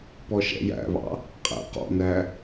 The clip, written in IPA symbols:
p ɔ ʃ ɛ̰ j æ̰ β ɑ̰ | qʼ æ̰ q ɔ̰ n æ

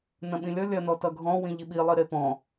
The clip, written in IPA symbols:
n ɐ̃ ɓ ĩ lʲ ʌ lʲ ɐ n ɔ t ʌ ɡʱ ɔ̃ w ĩ ʎ i ɓ i lˠ i ɾ e p ɔ̃

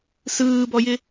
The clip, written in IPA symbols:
s ɯː b ɔ j ɪ

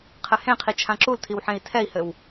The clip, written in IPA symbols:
qʰ ɘ h ẽ qʰ i t͡ʃʰ ã ǁ u l tʰ i w ħ ẽ i̯ tʰ ɛ i̯ h ɘ w

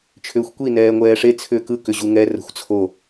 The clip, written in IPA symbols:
t͡ʃʰ ʏː xʷ kʷ i n ɛː ŋʷ ɛː ʂ e t͡sʰ ʏː k ɯ k ʏ ʑ u ŋ ɛ r ə̤ xʷ t͡sʰ o

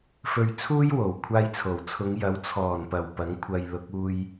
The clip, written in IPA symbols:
f ɵ˧ ɥ t͡sʰ uː˥ j w o˨˩ w kʷʰ aː˧ j t͡sʰ o˨˩ w t͡sʰ ʊ˨˧ ŋ j ɐ˨˥ w t͡sʰ ɔː˨˩ n p ɐ˨˩ w p ɐ˨˥ ŋ kʷʰ ɐ˧ j l ʊ˨˥ k̚ uː˧ j

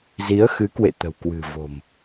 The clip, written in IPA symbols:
z i˨˦ ə̯ x ɨ˨˦ k w ḛ˧˨ t̪ ə̤˨˩ w k w ɨ̤˨˩ v o̤˨˩ m

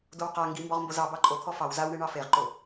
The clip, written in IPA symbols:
d o w q a ŋ ɡ i m b ɔ ʁ m b o z ɑ b ɑ ǃʼ o t̪ʰ ɔ f ɑ w z a w ɳ e ɳ ɑ f e ʁ ǃ o

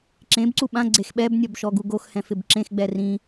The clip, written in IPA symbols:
ǁ ẽ b ǀ u ɓ ã ɡ͡ǀ e x ɓ ɛ b nʲ ɔ b ʃ ɔ ɡ u ɡ o x h ɛ̃ f ɪ b ǁ ẽ x ɡ͡b ɛ r ĩ

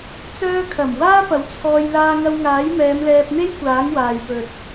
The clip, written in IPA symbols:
t͡s œː˧ kʰ ɐ˨˩ m w aː˥ p ɐ˨˥ w t͡sʰ ɔː˧ j l aː˧ ŋ ɐ˧ w ŋ aː˨˥ j m ɛː˨˧ m l ɛː˧ p̚ n̪ e˥ j kʷ aː˨˥ ŋ w aː˨ j p ɵ˨ t̚

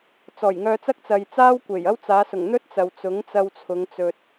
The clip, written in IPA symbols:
t͡s ɔː˨˩ j ŋ œː˧ t͡s ɐ˥ k̚ t͡s ɐ˨ j t͡s aː˥ w kʷ e˨˩ j ɐ˥ w t͡s aː˨˧ s ʊ˨˩ ŋ n̪ ɵ˥ t̚ t͡s ɐ˨ w t͡s ʊ˨˥ ŋ t͡s ɐ˧ w t͡sʰ ʊ˨˧ ŋ t͡s ɵ˨ t̚

